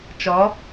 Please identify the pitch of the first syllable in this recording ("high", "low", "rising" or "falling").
rising